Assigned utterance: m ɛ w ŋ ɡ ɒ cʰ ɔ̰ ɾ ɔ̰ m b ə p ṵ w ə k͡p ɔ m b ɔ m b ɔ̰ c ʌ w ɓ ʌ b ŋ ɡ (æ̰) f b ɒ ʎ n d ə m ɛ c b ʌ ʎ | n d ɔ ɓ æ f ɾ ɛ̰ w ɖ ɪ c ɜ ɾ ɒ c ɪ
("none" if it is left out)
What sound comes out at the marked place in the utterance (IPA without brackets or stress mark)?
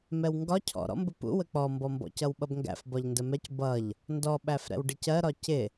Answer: æ̰